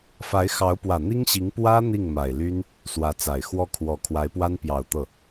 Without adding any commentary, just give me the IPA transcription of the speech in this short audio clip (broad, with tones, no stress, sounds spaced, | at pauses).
f a˧˥ ɪ̯ x ɑ˧˥ ʊ̯ p w ä˨˩ n̪ i˥ ŋ ɕ i˧˥ ŋ p w ä˥ n̪ i˥˩ ŋ m a˨˩ ɪ̯ l y˥ n | s w ä˧˥ t͡s a˨˩ ɪ̯ x w ɔ˥˩ kʰ w ɔ˨˩ kʰ w a˧˥ ɪ̯ p w a˥ n p j ɑ˨˩ ʊ̯ t̪ ɤ˥˩